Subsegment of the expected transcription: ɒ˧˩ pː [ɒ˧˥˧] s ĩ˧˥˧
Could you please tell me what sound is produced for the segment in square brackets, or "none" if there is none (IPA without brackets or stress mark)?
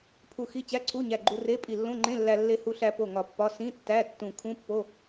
ɒ˧˥˧